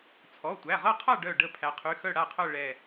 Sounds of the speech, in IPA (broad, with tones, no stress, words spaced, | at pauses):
t͡sʰɔ˩˧˩tʷæ˩˧˩ʁɤ˥˨qʰa˥˨ ɖœ˧˩ɖə˧˩ pʰæ˩˧qʰy˩˧˩ xœ˥˨ɽa˥˨qʰœ˥˨ ɭɛ˧˩